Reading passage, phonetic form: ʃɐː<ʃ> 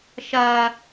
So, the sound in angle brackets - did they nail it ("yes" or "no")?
no